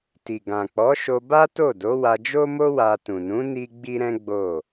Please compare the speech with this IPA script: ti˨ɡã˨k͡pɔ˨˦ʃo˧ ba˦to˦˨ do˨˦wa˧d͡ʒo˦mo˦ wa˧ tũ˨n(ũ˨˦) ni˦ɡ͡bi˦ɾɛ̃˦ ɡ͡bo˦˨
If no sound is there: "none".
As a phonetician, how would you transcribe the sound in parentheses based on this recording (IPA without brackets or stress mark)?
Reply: ũ˨˦